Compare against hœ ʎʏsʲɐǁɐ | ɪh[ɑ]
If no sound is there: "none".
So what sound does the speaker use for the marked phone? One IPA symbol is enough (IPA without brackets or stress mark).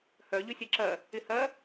ɐ